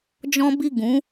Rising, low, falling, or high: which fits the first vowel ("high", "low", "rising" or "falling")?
high